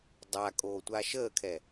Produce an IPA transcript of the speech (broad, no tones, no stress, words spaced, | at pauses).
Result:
dˤa kʼoːtʷaʃəːkʰɛ